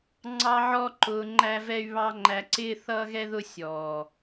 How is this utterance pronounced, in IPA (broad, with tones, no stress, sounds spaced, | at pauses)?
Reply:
ŋ͡ǀ ɑ˦ ʕ ɔ˦ ǃ ʊː˧ ŋ͡ǃ æ˦ v ɛ˦ y̯ β ɑ˦ ŋ͡ǃ æ˧ ǀ ɪː˦ θ ʌː˦ ɣ ɛ˦ ð ʊ˦ sʲ ɔː˨